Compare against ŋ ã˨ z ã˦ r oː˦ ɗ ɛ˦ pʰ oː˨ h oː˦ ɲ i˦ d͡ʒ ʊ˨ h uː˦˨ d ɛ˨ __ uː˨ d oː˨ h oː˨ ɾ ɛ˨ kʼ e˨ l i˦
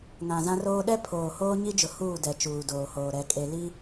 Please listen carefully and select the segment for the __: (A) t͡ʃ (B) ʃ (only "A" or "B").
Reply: A